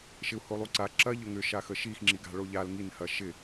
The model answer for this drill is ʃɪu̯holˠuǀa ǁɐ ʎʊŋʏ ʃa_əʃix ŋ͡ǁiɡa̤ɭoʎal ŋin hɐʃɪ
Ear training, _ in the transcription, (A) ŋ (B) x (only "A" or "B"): B